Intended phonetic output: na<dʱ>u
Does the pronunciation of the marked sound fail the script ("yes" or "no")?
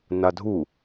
no